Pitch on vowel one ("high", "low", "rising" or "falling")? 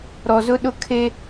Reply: low